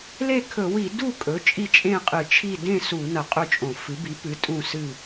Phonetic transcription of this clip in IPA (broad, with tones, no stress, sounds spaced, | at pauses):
l e˥˨ kʰ ɵ˧˩˧ w i˧˩˧ d u˥˨ kʼ ɵ˩˥ t͡ʃʼ i˥˨ t͡ʃʼ ẽ˥˨ qʼ ɨ˧˩˧ t͡ʃʰ i˥˨ d ẽ˥˨ s u˧˩˧ n ɐ˧˩˧ qʼ ɵ˥˨ t͡ʃʼ õ˧˩˧ f ɨ˩˥ b i˩˥ p ɨ˩˥ tʼ ũ˥˨ s ɨ˥˨